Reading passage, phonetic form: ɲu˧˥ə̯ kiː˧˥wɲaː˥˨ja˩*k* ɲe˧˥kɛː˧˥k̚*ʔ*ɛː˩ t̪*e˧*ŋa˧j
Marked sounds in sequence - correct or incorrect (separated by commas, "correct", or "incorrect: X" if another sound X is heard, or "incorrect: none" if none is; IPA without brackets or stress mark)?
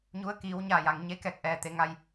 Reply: incorrect: ŋ, correct, incorrect: e˩˧